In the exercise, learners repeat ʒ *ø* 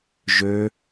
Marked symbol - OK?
yes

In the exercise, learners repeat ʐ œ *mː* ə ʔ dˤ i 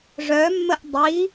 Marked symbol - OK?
yes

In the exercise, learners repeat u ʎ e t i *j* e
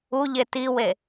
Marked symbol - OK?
no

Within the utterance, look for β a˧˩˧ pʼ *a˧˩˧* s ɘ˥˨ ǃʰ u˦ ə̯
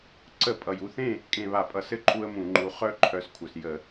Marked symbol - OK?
no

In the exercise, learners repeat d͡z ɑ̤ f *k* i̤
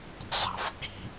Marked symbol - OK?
yes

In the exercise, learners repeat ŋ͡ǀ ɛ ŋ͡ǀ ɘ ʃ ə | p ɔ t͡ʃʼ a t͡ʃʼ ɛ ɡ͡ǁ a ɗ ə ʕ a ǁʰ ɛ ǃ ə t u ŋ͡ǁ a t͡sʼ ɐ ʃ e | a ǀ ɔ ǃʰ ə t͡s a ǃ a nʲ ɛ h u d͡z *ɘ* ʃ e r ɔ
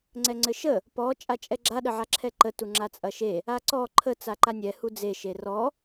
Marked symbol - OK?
no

